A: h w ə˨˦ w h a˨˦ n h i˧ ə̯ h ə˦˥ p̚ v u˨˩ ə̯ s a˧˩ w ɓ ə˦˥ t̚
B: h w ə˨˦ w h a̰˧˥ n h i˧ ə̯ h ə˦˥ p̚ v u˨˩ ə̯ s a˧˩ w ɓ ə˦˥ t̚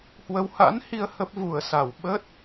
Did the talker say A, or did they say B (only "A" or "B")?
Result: B